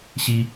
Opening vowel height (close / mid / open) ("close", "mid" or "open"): close